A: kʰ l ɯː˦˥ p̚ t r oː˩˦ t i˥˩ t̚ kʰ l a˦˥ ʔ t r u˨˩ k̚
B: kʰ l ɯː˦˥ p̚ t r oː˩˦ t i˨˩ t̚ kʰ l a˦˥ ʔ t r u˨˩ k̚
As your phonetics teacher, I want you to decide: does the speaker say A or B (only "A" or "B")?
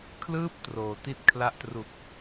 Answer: A